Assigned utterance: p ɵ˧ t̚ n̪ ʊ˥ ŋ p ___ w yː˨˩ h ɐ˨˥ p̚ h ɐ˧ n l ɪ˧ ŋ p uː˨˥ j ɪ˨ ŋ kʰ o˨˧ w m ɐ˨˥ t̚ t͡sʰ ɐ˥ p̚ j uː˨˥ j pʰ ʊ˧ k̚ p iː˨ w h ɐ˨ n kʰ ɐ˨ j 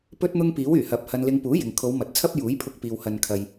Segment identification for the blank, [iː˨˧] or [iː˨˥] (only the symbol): iː˨˥